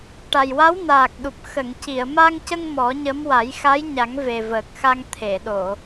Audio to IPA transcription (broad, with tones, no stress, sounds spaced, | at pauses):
ʈ a˨˩ j w a˧˥ w n aː˨˩ k̚ ɗ u˨˩ p̚ x ə˨˩˨ ŋ c i˨˩˨ ə̯ m a˧ ŋ c ə˧ ŋ m ɔ˨˩˦ ɲ ə˧˥ m w a˨˩˦ j x a˧˥ j ɲ a˨˩˦ ŋ v e˨˩ v əː˨˩ k̚ x a˧ ŋ t̪ʰ e˨˩˨ ɗ o˨˩˨